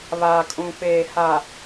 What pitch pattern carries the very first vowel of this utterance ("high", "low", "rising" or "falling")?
low